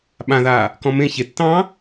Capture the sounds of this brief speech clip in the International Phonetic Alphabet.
ɓ ã ð aː | k ɔ̃ m ẽ ç e tː ɑ̃

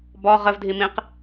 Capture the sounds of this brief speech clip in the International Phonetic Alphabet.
b ɔ ʁ ə v dʱ i m ĩ q

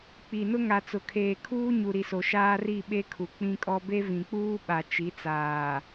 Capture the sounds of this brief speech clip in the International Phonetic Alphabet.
k͡p i˨ n ʊ˦ ŋ a˨ t͡s ʊ˨ kʰ eː˨ kʰ uː˦ ɲ u˨ ɾ i˨ s o˨ ʃ aː˦ r i˦˨ ɓ e˦ kʰ u˨ k͡p ĩ˦ kʼ ɔ˦ b e˦ v ĩ˨ k͡p uː˦ ɓ a˨ t͡ʃ i˨˦ t͡s aː˨

